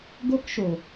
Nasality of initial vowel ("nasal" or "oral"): oral